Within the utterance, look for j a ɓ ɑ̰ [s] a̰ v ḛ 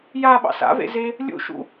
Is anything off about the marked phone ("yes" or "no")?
no